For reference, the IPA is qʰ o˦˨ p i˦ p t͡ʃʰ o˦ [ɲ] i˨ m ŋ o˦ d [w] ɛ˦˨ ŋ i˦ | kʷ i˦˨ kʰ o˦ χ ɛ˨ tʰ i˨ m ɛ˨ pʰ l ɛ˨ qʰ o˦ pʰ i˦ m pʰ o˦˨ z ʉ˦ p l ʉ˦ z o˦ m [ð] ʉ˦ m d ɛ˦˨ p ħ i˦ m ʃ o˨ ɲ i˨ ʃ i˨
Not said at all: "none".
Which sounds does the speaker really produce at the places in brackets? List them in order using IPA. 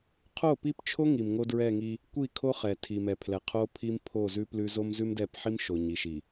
ŋ, ɹ, z

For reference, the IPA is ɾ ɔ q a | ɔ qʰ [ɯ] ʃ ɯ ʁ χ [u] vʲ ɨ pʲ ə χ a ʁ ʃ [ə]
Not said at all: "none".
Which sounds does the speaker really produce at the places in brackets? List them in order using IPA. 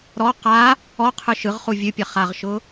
ɯ, u, ʊ

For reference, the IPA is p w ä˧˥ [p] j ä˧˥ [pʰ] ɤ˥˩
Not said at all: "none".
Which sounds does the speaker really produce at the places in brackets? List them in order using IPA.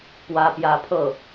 p, pʰ

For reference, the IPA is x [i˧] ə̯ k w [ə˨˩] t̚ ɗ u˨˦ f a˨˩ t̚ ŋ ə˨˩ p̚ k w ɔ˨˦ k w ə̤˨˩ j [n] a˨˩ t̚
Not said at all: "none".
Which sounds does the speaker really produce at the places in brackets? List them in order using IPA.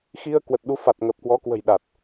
i˧, ə˨˩, ɗ

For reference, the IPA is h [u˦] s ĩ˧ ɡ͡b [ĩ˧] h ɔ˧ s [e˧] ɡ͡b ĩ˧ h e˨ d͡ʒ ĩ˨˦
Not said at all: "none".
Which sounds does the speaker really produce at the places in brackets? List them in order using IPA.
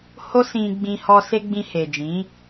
o˦, ĩ˧, e˧

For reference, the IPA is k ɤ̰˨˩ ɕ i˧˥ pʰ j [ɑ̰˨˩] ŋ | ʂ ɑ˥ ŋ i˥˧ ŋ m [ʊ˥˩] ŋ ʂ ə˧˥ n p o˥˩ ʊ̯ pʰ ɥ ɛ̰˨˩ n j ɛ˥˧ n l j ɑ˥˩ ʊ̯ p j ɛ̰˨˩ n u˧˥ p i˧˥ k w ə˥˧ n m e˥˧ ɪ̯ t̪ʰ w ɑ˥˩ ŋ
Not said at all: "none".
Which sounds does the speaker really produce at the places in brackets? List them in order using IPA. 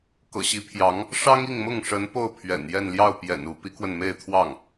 ɑ˧˥, ʊ˥˩

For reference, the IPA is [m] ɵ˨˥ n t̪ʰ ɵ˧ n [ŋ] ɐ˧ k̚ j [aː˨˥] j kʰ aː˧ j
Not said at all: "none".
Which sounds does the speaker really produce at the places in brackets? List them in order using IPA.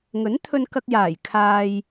ŋ, k, aː˨˩

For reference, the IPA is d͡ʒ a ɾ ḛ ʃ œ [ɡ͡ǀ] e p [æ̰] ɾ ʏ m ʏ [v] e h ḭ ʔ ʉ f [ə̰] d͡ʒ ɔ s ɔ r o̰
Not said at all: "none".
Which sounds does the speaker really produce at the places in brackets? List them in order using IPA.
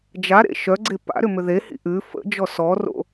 ɡ͡ǀ, a̰, ð, ə̰

